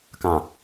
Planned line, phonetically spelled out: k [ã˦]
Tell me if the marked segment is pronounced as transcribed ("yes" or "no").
no